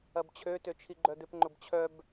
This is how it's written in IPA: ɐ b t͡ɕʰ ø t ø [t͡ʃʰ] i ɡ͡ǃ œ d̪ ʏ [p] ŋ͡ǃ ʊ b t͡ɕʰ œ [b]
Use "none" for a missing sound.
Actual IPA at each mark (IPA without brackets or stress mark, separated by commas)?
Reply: t͡ʃʰ, p, b